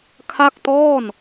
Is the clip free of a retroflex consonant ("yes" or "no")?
yes